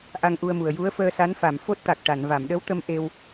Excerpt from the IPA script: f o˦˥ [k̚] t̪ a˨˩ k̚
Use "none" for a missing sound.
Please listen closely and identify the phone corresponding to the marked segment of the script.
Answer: t̚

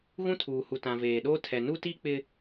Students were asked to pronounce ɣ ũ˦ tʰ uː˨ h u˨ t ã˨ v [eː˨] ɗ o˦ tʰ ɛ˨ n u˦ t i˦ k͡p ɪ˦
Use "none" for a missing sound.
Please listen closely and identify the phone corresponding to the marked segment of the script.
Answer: eː˨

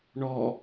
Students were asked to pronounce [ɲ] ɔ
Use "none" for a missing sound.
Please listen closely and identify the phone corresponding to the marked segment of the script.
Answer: ɳ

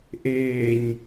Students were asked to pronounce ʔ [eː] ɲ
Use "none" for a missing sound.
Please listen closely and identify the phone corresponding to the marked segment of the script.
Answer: eː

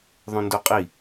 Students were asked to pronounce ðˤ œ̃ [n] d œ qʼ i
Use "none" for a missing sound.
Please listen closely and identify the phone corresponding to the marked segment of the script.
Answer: n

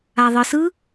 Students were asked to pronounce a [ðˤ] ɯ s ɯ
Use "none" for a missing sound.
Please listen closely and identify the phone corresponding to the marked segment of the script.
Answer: ðˤ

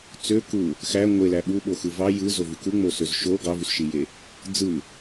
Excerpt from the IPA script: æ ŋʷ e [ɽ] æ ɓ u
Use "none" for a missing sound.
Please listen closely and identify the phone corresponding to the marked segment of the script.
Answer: l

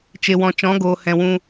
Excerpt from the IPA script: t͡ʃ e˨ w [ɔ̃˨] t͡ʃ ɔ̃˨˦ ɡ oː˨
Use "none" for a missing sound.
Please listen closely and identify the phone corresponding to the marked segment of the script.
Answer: ɔ̃˨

